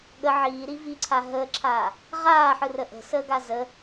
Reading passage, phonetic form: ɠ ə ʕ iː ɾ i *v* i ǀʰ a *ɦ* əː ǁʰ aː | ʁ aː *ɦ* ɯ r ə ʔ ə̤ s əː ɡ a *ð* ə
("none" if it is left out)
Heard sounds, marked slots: v, ɦ, ħ, z

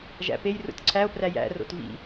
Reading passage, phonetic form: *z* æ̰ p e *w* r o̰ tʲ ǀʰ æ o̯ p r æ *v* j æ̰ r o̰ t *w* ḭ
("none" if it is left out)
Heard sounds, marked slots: ʒ, j, none, v

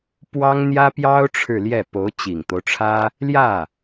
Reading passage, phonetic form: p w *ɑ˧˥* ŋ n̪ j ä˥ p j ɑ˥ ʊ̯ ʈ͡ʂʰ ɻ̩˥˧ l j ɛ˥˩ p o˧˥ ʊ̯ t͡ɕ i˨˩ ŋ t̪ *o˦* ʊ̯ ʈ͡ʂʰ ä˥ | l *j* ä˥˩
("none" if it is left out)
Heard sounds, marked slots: ɑ˥, o˦, j

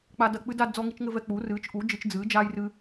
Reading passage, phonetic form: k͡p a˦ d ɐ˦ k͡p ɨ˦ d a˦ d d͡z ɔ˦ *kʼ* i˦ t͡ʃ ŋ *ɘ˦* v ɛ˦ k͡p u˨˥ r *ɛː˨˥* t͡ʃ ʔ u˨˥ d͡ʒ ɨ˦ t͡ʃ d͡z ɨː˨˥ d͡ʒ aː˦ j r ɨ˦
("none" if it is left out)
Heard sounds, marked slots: ŋ, ɘ˦, ɨː˨˥

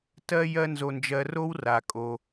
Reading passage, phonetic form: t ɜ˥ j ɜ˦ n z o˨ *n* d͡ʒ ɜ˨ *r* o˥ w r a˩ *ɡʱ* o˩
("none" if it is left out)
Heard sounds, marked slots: n, r, kʼ

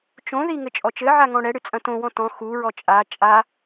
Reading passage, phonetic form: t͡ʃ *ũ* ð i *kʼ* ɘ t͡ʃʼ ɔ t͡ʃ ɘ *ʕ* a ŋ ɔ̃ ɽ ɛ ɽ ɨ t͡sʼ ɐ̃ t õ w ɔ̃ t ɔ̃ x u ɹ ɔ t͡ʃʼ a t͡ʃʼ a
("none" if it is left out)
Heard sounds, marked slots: õ, ŋ, ʕ

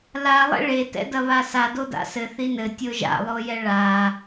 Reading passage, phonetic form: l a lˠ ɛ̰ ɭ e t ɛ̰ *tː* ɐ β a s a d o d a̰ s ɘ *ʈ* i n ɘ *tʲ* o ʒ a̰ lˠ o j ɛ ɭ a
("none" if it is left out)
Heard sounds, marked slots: d, θ, tʲ

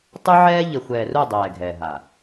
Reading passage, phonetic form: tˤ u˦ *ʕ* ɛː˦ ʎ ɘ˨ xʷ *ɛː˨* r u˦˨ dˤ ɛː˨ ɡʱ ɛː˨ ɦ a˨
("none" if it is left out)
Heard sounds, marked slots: ʕ, ɛː˨

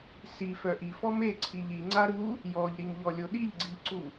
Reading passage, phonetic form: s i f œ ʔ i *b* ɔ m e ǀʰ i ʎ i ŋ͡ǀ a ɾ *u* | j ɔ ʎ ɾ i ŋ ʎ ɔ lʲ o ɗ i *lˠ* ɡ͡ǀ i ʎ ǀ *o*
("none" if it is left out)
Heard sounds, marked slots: f, u, ʎ, u

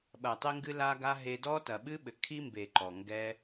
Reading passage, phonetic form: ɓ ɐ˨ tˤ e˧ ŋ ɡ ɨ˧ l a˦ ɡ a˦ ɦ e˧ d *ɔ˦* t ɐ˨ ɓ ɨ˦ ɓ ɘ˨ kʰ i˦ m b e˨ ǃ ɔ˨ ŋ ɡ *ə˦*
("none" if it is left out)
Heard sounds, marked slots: ɔ˦, ɛ˦

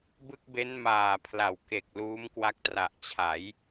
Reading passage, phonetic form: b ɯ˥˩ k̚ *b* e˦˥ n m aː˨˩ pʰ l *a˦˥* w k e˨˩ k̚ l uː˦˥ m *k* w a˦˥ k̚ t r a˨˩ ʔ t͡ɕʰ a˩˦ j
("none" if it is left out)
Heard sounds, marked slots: b, a˨˩, k

